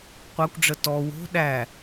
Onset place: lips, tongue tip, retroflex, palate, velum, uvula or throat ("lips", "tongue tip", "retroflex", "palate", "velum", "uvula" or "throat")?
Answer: uvula